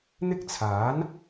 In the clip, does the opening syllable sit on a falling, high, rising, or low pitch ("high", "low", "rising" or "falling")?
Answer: high